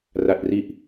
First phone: r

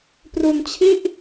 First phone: p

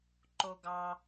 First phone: ǃ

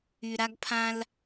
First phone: y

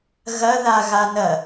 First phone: ɣ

